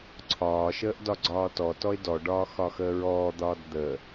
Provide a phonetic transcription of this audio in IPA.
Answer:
ǀʰɒːʃəːʔ dɒɡ͡ǀɒːtɔtɔɪ̯ dɔɖɒː xɒxəːɹɔːd̪ɒːd d̪ə

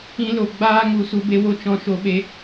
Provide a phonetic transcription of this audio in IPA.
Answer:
ĩ˦lo˧ ɡ͡baː˦ŋu˧ su˦be˦ wo˦t͡ʃɔ̃˧ ʃo˦ɓe˦

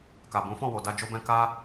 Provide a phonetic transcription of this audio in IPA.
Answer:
ka˨bũ˨˦fɔ̃˦˨wo˨ da˧d͡ʒo˧bɛ̃˧ ka˦

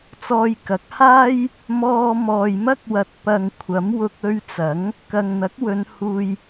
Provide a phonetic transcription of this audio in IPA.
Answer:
t͡sɔː˧jkɐ˨˥k̚ haː˥j | mɔː˧ mɔː˨jmɐ˥k̚wɐ˨t̚ pɐ˨ŋ kʷʰɐ˨˥m wʊ˧k̚ ɵ˧ɥ t͡sɐ˨˥ŋ | kɐ˨ŋn̪ɐ˨˥k̚wɵ˨˧n huː˧j

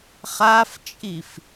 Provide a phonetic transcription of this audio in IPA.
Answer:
χaft͡ʃʼif

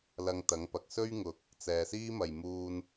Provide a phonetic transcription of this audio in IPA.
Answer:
lɐ˧ŋt̪ɐ˨˥ŋpɐ˨k̚ sɵ˥ɥŋʊ˨k̚ | t͡sɛː˨siː˥mɐ˨j muː˧n

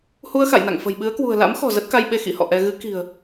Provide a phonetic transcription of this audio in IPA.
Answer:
hu˧ə̯xa̰˧˨jna̰˧˨ŋ fə̤˨˩jɓɨ˨˦ə̯kwṳ˨˩ə̯ la̰˧˥mxɔ̤˨˩ zə˦˥t̚ka˧jɓe˧ xḭ˧˥hɔ̰˧˨ʔɛ˧ ɣɨ˨˦ki̤˨˩ə̯

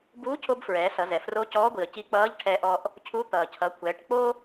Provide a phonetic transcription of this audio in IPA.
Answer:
buː˧˥cʰo˧b fɹɛː˩˧sʌ˩˧zɛ˩ fro˧˥cɔː˧˥ɡʷi˩ə̯ ci˧k͡pʌː˧˥ʎ ʈʰɛ˧ʔɔ˧ʔ | cʰu˧˥ t̪ʌː˩cʰʌ˩˧kʷʰɛː˩˧ʈ k͡po˥

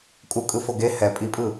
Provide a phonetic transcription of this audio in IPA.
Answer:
kʼukʼɯfo ɡe hɛ pʼipʼɯ

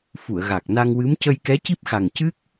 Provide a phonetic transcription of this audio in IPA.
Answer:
fu˨˩˨ə̯ɣa˨˩k̚ na˧ŋwɨ˧˥m cə˧jkɛ˧˥ci˦˥p̚xa˨˩ŋ cɨ˦˥k̚

